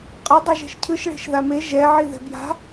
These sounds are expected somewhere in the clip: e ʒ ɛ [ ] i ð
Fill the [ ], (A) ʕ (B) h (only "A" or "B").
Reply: A